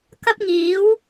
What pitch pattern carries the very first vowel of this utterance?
high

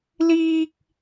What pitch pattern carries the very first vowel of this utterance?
high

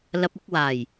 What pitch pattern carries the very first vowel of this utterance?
low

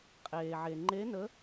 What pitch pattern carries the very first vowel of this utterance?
low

